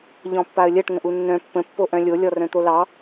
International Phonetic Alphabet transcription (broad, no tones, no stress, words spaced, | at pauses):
ʎɔ̃pːaə̯lʲɜʈ ŋə̃ʔunːœ̃ pːə̃ pːoʔœ̃lʲo lʲɔrœ̃t̪olɑ